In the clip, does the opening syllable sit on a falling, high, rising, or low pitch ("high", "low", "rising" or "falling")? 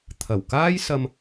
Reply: low